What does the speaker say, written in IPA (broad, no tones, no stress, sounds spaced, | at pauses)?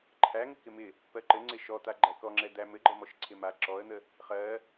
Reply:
ǃʰ æ ŋ ɘ k ɪ m ɪ | p ɜ ǃ ɘ ŋ͡ǀ ɪ ʃ ɔ t̪ a ɡ͡ǃ æ k ɔ ŋ͡ǁ ɛ d̪ æ m ɘ ɡ͡ǃ ɜ m ɔ ʃ ǀʰ ɪ m a ǁ ɔ ə̯ n̪ ə | χ ɜ